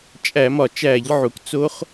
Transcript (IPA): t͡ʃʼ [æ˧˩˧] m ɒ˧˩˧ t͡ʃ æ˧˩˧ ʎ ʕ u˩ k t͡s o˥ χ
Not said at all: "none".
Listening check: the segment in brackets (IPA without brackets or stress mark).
æ˧˩˧